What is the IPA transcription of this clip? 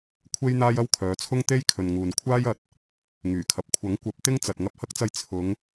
kʷʰ e˥ j n̪ aː˥ j ɐ˥ w kʰ œː˨˧ t͡sʰ ʊ˥ ŋ t̪ e˥ j kʰ ɵ˨ n ŋ uː˨ n kʷʰ aː˥ j ɐ˨˥ t̚ | ŋ yː˨˩ kʰ ɐ˨ p̚ kʷʰ ɐ˨˥ ŋ kʷ ɐ˨˥ p̚ t̪ ɪ˥ ŋ t͡s ɐ˨ t̚ ŋ ɐ˧ p̚ h ɐ˥ k̚ t͡s ɐ˧ j t͡sʰ ʊ˨˧ ŋ

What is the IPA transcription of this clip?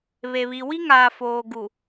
β e˨ β i˨ w i˦ ŋ aː˨ f oː˨ ɡ u˨

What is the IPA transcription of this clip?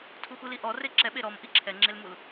tʰ u x u l i ʔ ɔ r e ǁ ɛ ɓ e ɾ ɔ m ʔ i ǁʰ ɛ ŋ͡ǁ e l m u l

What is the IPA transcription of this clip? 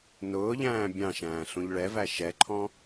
n ʊː ʎ æ̃ː bʲ ɑ̃ ʃ æ̃ː ɬ ũ ʎ ɭ ɛ v æ ʃ ɛ ǃʰ ɔ̃

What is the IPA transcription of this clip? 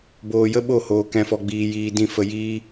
b oː˧ j ə˦ ɓ o˦˨ h oː˧ k ɛ̃˧ f ɔ˧ ɡ͡b iː˧ j iː˧ d ĩ˦˨ f ə˧ j iː˧

